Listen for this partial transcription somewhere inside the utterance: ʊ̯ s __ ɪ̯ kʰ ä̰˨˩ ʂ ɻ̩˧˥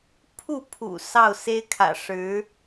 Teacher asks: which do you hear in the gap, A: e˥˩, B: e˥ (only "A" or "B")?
B